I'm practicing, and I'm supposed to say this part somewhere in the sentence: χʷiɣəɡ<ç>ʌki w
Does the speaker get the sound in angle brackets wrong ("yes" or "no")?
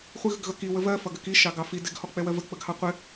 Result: yes